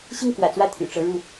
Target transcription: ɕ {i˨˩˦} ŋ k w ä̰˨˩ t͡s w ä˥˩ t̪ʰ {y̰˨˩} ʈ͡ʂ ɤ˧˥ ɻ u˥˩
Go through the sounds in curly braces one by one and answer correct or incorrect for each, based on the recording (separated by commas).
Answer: incorrect, correct